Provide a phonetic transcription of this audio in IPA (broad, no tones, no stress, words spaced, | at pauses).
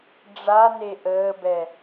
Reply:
ɖ͡ʐa neʔəːbɛ